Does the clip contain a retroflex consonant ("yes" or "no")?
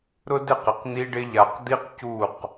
yes